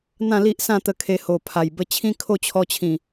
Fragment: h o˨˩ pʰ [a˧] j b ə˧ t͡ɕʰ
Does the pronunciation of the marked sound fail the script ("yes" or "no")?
yes